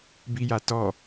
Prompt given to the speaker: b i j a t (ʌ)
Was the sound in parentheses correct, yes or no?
no